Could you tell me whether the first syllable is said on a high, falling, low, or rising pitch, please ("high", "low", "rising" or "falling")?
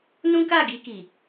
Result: high